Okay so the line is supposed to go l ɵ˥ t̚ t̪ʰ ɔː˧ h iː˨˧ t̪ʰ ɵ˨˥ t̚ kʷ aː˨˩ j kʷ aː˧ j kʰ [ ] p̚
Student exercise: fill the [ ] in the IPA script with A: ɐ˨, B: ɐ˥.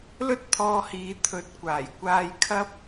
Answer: B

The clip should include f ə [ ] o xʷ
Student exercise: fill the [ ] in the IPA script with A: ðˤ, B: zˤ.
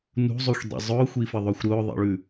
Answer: A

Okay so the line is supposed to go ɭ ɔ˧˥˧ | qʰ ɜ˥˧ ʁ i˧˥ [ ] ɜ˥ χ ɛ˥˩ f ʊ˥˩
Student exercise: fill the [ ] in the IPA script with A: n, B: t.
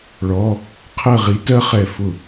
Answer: B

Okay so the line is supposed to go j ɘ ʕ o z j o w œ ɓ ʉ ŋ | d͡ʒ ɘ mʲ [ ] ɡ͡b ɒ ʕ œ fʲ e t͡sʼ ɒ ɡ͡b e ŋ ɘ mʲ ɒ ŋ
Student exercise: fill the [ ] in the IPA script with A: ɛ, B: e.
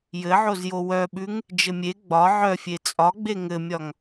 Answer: B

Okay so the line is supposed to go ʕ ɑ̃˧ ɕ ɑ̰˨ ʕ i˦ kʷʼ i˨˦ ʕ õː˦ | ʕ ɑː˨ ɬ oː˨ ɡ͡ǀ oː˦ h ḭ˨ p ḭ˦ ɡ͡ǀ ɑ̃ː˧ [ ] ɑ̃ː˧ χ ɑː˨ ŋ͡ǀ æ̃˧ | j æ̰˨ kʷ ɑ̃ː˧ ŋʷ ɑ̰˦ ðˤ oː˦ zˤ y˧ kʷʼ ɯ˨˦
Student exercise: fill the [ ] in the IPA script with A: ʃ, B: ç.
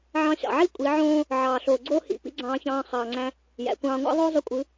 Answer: B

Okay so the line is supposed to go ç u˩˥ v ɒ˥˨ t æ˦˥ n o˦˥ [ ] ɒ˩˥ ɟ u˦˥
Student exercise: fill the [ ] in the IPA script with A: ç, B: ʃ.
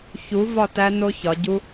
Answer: A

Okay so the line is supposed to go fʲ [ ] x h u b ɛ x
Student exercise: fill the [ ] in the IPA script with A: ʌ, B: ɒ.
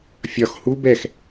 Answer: B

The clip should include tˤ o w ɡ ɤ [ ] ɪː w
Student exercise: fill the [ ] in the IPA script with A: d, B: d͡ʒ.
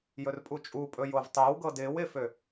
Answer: A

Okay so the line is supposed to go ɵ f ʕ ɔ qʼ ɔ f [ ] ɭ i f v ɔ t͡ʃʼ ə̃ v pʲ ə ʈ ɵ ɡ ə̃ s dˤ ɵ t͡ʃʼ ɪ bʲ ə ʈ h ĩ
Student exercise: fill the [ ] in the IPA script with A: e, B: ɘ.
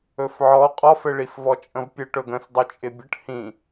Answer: B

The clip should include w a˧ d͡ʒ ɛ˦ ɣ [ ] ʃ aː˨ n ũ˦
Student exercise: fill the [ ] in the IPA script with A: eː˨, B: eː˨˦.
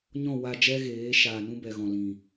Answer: B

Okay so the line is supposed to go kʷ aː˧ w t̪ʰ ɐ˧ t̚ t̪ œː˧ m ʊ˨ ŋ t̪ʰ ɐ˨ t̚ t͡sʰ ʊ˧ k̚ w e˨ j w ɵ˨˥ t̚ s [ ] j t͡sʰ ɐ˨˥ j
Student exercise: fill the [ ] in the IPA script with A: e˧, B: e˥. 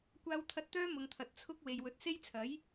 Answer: B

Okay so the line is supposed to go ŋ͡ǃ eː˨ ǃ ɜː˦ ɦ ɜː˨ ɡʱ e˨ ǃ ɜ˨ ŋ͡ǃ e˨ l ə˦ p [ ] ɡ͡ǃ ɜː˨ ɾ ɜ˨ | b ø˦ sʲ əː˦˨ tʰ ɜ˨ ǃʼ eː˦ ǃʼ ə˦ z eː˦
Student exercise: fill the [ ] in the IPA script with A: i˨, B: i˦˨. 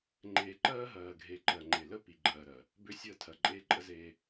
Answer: A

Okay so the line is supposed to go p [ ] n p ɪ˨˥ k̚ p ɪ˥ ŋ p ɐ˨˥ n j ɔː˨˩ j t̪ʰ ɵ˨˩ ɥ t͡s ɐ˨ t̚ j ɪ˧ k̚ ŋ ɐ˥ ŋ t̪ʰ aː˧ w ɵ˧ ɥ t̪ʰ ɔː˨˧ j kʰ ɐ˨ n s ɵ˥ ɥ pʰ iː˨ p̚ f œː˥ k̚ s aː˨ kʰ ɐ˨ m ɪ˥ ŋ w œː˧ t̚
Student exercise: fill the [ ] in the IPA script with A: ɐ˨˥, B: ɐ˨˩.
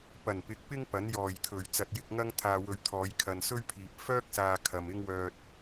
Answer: B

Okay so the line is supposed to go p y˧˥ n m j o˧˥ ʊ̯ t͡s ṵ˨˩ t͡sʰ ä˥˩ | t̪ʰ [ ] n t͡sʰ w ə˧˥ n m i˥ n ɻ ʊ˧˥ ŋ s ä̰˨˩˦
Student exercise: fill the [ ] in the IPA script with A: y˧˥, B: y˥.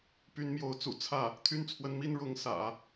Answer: B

